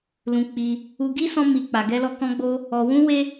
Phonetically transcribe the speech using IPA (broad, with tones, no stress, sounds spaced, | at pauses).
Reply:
l ũ˧ k͡p i˧ | u˧ ɡ i˦ s ɔ̃˦ m i˧ k͡p a˧ ɡ ɛ˦ l ɔ˦ k ɔ̃˦ ɡ͡b o˦ | ɔ˧ w ũ˦ w e˦